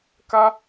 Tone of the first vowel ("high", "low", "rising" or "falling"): high